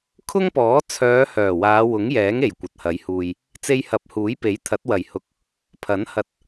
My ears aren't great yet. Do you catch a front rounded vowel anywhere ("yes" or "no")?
yes